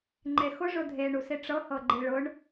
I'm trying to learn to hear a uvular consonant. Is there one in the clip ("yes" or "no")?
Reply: no